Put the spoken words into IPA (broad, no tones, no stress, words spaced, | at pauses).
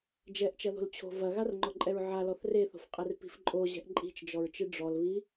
d͡ʒɛʔt͡ʃɐðo̤lt͡ɕʰo̤ vɐɣarŋ͡ǃɔǃʼɛɹ ʕalɔθ reθo̤fqʼɛrpi̤f ǃʼoʑɛ̤ʔ ǃʼi̤t͡ʃd͡ʒɔɹt͡ʃɨ ɖ͡ʐɔlβi